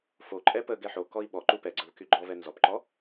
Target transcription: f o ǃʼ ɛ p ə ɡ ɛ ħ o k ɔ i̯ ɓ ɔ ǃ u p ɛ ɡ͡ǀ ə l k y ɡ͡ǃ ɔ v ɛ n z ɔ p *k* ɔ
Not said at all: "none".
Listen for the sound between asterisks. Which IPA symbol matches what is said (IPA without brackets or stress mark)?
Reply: ǃ